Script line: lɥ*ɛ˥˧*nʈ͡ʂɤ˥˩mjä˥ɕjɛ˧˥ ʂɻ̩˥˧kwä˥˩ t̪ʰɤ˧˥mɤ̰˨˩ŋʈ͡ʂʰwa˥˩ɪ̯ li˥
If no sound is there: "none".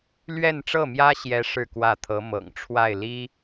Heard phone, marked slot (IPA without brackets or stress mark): ɛ˥˧